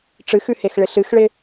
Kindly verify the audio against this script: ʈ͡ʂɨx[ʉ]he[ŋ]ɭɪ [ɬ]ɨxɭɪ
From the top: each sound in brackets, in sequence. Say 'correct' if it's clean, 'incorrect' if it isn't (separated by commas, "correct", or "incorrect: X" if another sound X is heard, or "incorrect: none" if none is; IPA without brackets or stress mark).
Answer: correct, incorrect: x, correct